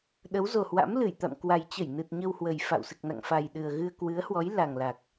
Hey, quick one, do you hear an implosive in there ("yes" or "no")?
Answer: yes